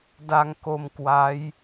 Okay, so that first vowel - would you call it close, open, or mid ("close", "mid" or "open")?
open